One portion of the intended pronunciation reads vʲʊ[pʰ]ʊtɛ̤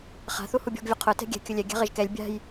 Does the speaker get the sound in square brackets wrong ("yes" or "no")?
yes